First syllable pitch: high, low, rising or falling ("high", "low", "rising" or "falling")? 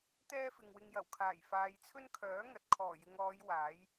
high